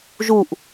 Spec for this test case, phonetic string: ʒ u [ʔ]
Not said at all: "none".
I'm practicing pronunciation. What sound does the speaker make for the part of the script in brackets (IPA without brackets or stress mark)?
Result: ʔ